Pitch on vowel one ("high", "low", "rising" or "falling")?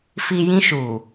high